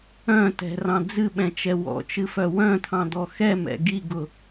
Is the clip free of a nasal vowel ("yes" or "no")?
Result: no